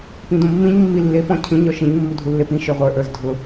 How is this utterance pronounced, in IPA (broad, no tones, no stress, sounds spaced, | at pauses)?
p ĩ d ũ mː ĩ ɲ mː i lː e p ɔ̃ cʰ ĩ ɲ ɔ ʃ ĩ ɲ mː u dʱ u lː e p ĩ ʃ ə˞ ʁʷ ə˞ ʔ ə˞ z dʱ ʊ